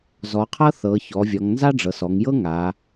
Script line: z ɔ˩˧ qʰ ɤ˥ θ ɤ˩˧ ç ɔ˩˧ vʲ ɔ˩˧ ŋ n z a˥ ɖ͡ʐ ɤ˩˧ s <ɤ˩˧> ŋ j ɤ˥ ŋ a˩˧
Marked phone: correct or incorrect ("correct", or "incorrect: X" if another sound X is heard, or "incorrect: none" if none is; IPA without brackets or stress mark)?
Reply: incorrect: ɔ˩˧